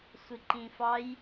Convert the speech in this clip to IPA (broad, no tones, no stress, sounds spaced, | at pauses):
sʷ i ǃ ĩ f ɑ j